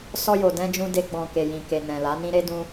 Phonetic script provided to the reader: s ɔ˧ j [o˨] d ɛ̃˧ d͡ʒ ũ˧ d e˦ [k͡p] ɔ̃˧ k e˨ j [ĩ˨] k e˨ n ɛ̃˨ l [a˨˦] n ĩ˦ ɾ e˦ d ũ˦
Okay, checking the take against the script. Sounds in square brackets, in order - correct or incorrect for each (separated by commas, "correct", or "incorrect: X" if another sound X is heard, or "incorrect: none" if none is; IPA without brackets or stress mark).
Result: correct, incorrect: ɡ͡b, correct, correct